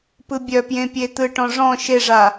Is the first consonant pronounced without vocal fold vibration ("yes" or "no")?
yes